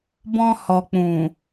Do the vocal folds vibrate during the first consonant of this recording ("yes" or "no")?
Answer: yes